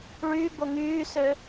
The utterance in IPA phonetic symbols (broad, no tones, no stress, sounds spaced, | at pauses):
ɭ yː b o ŋ yː s ø